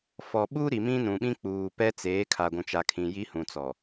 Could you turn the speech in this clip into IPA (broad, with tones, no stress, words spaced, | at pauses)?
fɔ˨ɓuː˦ ɾi˨ mĩ˦nũ˨ɓĩ˦ k͡puː˨pɛ˦ t͡seː˨˦kʰa˨ ɡʷũ˨t͡ʃa˨kʰĩ˨ ji˦hũ˨t͡sɔ˨